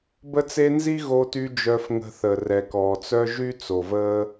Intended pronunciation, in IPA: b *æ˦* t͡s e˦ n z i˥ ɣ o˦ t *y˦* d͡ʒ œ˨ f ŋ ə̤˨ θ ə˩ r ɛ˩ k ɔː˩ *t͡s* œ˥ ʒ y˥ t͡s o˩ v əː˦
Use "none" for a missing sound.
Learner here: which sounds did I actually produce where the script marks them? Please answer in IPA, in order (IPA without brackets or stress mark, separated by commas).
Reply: ə˦, y˦, t͡s